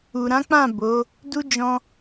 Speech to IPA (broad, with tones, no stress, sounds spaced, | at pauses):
u˨ ɾ ã˨˦ k͡p ã˦˨ b o˨˦ | d u˦ d͡ʒ ɔ̃˧